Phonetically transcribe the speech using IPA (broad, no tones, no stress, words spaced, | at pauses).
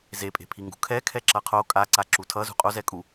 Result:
zepʼe̤pʰiŋɡṳ kʰɛkʰɛ ǁʌqʰo kʼaǀa ǁutʰʌzṳ qʼozɛ kʼu